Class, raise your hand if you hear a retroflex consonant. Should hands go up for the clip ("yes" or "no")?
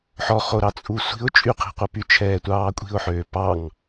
no